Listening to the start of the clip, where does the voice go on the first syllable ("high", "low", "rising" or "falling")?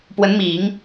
rising